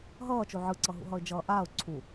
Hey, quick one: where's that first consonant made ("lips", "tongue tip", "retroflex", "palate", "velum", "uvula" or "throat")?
throat